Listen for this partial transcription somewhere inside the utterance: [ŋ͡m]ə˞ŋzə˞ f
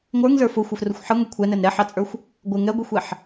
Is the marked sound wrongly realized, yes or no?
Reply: yes